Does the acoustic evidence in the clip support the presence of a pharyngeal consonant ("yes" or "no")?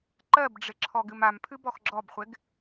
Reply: no